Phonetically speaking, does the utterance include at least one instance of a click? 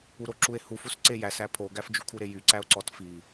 yes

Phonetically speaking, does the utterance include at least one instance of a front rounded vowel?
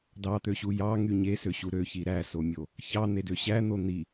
yes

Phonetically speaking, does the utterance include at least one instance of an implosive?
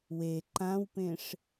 no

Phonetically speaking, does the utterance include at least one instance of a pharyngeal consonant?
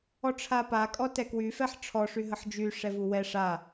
yes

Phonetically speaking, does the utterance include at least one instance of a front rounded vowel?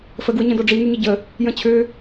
yes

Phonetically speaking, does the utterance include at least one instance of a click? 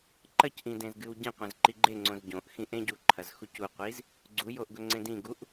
yes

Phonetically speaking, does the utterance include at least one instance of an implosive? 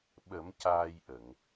yes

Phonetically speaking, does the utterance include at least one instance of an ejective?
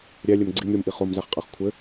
yes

